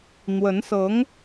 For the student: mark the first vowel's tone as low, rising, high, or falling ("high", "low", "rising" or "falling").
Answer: rising